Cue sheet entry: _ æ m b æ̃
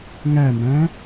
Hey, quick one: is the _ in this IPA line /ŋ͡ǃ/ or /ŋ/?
ŋ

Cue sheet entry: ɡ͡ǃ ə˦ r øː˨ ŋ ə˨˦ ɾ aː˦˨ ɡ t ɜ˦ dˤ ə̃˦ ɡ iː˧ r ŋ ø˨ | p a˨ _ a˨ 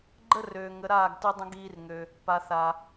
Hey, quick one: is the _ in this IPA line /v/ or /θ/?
θ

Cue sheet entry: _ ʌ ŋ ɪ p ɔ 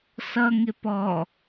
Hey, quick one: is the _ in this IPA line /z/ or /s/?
s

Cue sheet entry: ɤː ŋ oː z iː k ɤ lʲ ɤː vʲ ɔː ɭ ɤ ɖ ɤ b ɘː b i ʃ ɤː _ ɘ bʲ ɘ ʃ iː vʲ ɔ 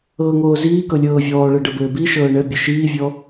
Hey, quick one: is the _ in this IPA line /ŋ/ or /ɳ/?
ɳ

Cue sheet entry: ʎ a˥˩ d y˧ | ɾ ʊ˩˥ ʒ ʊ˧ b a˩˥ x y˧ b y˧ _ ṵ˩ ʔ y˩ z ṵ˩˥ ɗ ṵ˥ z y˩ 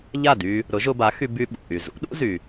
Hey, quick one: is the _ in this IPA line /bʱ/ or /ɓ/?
ɓ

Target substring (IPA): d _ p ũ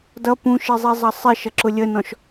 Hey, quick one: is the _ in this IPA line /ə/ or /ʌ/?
ʌ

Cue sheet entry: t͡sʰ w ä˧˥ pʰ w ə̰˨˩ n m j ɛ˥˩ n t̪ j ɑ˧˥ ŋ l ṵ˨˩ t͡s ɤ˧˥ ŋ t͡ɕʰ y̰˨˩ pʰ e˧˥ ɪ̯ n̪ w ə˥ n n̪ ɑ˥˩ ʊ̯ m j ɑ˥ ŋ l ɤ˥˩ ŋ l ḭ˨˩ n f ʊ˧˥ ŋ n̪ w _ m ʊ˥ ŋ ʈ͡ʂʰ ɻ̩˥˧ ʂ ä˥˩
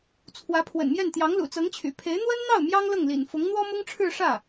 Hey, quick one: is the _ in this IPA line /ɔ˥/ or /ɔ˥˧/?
ɔ˥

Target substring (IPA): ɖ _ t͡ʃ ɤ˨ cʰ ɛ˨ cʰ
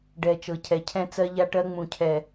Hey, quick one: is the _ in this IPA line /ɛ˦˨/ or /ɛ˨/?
ɛ˨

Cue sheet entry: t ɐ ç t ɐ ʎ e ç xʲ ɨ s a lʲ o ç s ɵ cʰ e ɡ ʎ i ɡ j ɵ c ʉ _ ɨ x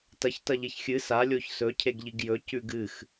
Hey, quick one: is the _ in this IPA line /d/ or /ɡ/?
ɡ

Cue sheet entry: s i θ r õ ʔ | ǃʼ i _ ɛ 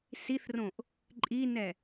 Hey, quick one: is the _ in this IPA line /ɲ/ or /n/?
n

